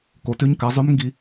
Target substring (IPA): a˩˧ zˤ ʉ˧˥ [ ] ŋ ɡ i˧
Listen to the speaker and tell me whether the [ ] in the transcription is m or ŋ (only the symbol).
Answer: m